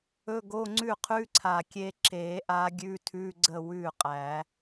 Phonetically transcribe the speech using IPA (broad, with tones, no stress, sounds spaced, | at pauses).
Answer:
ɵ˧˥˧ ɡ o˧˥˧ ŋ͡ǀ ʉ˥˩ qʰ ʉ˧˥˧ ǀʰ a˨˩ kʲ e˧ ǁ e˨˩˦ ʔ a˧˥ ɡʲ ʉ˧˥˧ tʰ ʉ˧˥˧ ɡ͡ǀ ə˥˩ w ʉ˥˩ qʼ æ˨˩˦